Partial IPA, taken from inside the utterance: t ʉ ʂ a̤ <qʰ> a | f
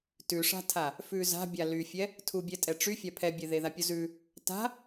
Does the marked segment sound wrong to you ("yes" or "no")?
yes